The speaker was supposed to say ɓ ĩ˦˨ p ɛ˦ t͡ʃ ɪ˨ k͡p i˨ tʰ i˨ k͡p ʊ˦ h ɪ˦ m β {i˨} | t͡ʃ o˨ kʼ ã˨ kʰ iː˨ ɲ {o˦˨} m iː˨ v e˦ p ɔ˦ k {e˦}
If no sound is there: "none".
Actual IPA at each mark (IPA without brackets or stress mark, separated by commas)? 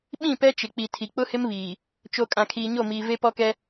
iː˨, o˦˨, ɛ˦